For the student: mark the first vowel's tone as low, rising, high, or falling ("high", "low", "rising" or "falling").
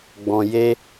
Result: low